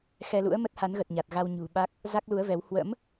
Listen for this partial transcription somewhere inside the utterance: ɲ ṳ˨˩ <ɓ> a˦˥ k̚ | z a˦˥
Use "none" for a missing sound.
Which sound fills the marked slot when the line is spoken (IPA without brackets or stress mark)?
ɓ